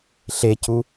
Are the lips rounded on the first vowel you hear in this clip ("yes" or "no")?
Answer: no